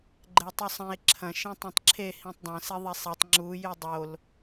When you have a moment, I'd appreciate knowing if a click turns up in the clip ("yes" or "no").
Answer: yes